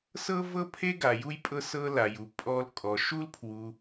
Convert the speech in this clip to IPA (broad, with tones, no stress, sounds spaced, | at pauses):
s ɤ˦ v ɤ˦ pʰ e˦ ɡ a˧ j u˦ j pʼ ɤ˦ s ɤ˦ l a˧ j u˧ pʼ ɔ˦ l kʼ ɔ˧ ʃ u˦ l pʰ w u˧